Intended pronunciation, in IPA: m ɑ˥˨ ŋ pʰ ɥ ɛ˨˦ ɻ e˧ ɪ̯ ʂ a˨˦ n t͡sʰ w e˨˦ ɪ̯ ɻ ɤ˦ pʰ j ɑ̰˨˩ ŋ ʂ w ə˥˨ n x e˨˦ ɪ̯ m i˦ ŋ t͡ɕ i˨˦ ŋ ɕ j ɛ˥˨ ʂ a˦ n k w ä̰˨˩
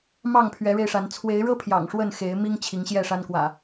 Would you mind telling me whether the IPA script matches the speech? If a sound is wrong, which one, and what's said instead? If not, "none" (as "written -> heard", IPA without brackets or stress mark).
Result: t͡ɕ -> t͡ɕʰ